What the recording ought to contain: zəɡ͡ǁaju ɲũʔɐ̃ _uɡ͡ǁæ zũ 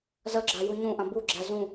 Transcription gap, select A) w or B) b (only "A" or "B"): B